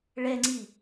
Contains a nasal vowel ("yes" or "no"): no